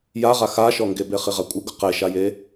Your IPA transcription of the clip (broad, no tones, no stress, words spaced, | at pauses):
jaʁa xaʃɔŋɡebe χiʁakʷʼɪɡʊ qeʃaje